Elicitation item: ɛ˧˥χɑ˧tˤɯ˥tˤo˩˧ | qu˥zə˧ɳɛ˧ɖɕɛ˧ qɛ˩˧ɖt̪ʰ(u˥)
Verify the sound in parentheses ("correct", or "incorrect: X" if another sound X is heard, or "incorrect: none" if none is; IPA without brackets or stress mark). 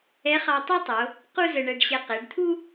correct